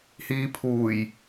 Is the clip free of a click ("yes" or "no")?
yes